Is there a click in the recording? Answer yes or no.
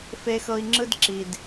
yes